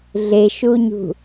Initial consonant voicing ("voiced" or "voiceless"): voiced